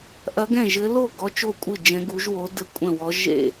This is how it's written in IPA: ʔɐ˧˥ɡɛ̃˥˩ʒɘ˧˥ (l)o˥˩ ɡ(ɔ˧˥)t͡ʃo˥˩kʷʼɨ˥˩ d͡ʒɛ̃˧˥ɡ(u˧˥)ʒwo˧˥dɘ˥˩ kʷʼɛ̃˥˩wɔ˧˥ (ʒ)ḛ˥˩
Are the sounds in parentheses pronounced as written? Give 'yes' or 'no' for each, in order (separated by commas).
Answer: yes, yes, yes, yes